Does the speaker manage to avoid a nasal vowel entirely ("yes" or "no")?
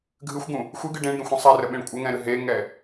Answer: no